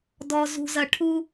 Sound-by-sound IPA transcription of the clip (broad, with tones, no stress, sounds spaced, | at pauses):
d ɔ˥ z ṳ˥ z ɐ˥ ʈʰ u˥